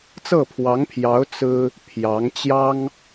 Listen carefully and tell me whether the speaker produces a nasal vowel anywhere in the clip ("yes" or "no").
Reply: no